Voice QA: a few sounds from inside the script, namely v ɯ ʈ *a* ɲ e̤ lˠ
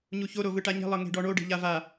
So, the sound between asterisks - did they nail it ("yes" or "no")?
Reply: yes